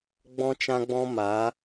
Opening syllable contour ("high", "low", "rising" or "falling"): high